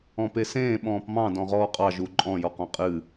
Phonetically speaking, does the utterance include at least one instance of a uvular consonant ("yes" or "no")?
yes